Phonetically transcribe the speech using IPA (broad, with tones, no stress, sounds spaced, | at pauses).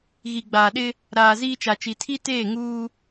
ɣ i˨ ɡ͡b aː˨ ɗ ɪ˦ | ɾ aː˨ z iː˦ t͡ʃ a˨ t͡ʃ i˨ tʰ i˦ t eː˦˨ ŋ uː˦